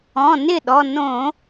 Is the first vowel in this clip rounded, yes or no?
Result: yes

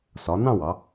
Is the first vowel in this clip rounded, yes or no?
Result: yes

